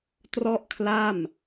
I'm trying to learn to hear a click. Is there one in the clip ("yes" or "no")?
no